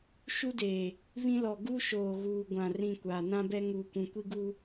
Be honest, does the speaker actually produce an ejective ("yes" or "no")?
no